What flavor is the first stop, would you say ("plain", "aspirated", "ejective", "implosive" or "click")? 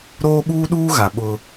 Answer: implosive